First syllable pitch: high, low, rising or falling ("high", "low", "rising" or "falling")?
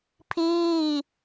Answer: falling